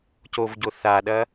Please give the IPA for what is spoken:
c o v ɟ o θ a ɗ ɐ

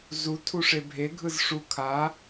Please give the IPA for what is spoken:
z u tʰ u ʂ e bʱ e ɡʱ ɯ z ʂ u kʰ a

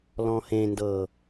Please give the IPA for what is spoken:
l ɔ̃ h ẽ n d ɤ

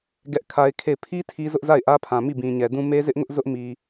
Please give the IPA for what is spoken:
ɡ ɛ˦ ʔ kʰ a˦ ɪ̯ kʰ e˦˨ ɪ̯ pʰ i˦ tʰ i˦ z ʊ˦ ʔ z a˦˨ ɪ̯ ʔ ä˦ pʰ ã˨ m i˦˨ b ĩ˨ ɲ ɛ˨ d ũ˦ m e˦ z ɪ˦ ʔ ŋ ʊ˦ ʔ z ʊ˦ ʔ m i˨

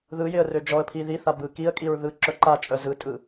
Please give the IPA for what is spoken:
ð ɯ j ɪ ə̯ r ø d͡ʒ ɔ ə̯ pʰ i ð i θ a b ɯ k i ə̯ kʼ i ɹ ð ɯ ǁ œ ǃ a t͡ʃʼ œ z ɯ tʼ ɯ

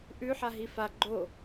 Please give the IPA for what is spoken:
ʔ ʉ ħ a ɦ i f a ɡ͡ǃ o

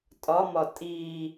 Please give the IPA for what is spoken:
tʼ ɒ m ɒ tʼ iː

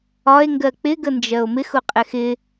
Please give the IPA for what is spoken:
ɒ e̯ ŋ ɡ ɜ k͡p ɪ ɡ ə n d͡ʒ ɜ o̯ m ɪ x ʊ qʼ ɛ x ɪ

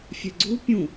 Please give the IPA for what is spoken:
fʲ ɛ ɡ͡ǀ u pʲ ũ

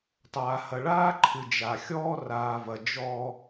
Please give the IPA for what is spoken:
tˤ aː˨ h ɐ˨ ɭ aː˦ ǃʰ ɨ˨ d͡ʒ a˨ xʲ ɔː˦ r aː˨ v ɐ˨ d͡ʒ ɔ˦

